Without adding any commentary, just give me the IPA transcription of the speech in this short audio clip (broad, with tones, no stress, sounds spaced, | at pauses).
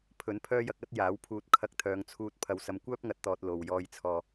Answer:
pʰ ɵ˨˥ n pʰ œː˥ j ɐ˧ k̚ ɐ˥ t̚ j aː˨˥ w pʰ uː˧ t̚ kʰ ɐ˧ k̚ t̪ʰ œː˨˧ ŋ t͡sʰ uː˧ t̚ pʰ ɐ˨˧ w s ɐ˨˧ m kʷ œː˥ p̚ ŋ ɐ˨ t̚ t̪ ɔː˨ t̚ l o˨ w j ɔː˨ j t͡sʰ ɔː˨